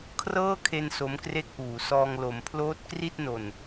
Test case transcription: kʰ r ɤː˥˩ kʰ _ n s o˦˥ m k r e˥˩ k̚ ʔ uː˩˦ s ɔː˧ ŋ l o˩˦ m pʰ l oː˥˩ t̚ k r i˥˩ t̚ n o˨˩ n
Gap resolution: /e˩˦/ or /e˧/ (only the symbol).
e˧